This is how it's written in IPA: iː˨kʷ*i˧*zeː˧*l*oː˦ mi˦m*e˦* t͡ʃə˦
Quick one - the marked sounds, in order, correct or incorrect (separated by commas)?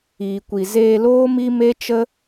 incorrect, correct, correct